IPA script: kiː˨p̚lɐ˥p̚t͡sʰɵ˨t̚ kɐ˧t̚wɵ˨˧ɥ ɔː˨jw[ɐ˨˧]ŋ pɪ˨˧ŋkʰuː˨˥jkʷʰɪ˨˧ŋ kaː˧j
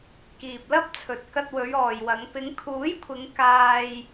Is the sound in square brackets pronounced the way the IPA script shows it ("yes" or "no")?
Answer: yes